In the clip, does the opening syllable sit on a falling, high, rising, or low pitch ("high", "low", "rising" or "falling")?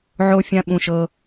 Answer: high